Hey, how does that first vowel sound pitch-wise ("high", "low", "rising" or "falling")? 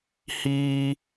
high